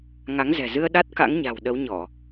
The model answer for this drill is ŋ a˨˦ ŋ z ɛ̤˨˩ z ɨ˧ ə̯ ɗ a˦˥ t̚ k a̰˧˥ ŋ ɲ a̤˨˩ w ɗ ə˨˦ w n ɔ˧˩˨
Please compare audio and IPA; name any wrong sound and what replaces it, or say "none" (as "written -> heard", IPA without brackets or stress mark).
n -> ɲ